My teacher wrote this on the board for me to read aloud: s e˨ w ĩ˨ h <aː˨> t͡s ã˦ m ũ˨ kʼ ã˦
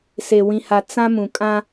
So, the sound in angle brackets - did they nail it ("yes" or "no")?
no